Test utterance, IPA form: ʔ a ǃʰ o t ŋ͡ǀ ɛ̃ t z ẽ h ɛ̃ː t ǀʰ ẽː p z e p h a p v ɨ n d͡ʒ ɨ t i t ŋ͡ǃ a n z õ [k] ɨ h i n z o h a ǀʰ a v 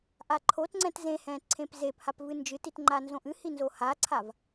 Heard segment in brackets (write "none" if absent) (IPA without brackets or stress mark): ʔ